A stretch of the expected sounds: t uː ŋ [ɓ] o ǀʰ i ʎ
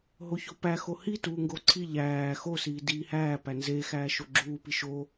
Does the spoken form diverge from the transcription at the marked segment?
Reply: yes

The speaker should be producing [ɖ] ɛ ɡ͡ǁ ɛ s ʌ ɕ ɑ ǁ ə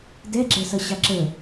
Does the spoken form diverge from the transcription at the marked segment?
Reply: yes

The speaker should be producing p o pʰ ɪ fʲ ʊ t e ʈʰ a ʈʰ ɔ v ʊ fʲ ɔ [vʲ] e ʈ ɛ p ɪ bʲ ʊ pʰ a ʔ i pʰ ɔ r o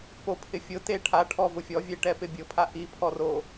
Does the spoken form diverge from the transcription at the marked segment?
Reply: no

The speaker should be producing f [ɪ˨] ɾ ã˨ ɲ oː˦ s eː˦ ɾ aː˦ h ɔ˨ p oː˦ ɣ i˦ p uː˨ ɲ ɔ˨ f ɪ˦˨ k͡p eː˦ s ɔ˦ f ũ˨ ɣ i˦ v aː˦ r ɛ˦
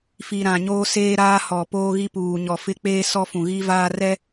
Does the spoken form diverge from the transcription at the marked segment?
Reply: yes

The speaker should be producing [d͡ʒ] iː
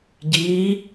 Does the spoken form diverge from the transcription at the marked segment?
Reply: yes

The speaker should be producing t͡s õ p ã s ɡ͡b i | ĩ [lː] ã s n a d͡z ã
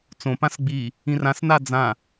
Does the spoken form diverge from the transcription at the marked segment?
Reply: yes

